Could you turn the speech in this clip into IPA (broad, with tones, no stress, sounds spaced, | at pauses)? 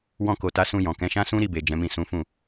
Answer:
w ɔ̃˧ k o˨ t a˨˦ s ũ˧ j ɔ̃˨ k ɛ̃˨˦ ʃ ã˦ s ũ˦ ɾ i˦˨ b e˨ d͡ʒ ɛ̃˨˦ m ĩ˦˨ s ũ˨˦ f ũ˦˨